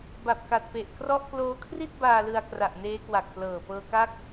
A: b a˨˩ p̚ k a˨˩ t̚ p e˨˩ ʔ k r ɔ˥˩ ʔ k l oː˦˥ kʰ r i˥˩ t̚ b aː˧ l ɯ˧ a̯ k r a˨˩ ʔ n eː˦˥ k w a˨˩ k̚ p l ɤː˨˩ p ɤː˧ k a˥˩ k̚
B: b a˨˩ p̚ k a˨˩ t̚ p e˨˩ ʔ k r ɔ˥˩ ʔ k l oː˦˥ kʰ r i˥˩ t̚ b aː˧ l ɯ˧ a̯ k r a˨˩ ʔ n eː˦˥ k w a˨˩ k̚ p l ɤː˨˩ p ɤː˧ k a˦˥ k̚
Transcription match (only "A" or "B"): B